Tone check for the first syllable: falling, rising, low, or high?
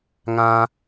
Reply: low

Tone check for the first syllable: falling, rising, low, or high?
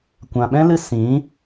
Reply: low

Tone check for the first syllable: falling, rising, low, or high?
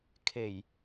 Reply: low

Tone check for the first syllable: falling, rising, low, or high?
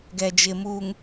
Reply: low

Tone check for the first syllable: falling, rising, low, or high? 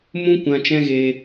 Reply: high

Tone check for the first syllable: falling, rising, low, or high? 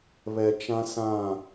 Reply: low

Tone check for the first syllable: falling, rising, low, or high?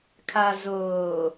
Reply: low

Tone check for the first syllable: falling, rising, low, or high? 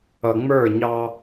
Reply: low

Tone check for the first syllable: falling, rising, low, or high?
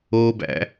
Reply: low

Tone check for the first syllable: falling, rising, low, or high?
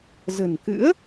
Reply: low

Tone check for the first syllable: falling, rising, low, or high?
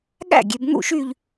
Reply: falling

